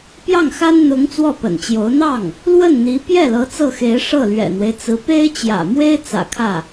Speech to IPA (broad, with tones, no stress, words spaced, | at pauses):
pjɑ˥˩ŋxa˥n n̪ʊ˧˥ŋ t͡swɔ˥˩pə̰˨˩nt͡ɕjo˧˥ʊ̯ n̪ɑ˥˩ŋ | lwə˥˩nn̪i˧˥ pjɛ˥˩ lɤ˧˥t͡sɤ˥˩xe˧˥ɪ̯ ʂɤ˥˩lɥɛ̰˨˩n̪we˦ɪ̯t͡sɹ̩˧˥ pe˥ɪ̯t͡ɕjä̰˨˩mwe˥ɪ̯ t͡sä̰˨˩kʰä˥˩